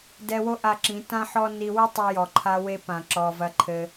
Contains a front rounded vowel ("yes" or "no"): no